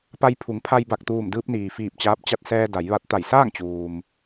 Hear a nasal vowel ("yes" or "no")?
no